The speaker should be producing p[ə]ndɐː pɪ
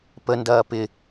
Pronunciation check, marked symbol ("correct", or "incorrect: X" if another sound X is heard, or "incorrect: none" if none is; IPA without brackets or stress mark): correct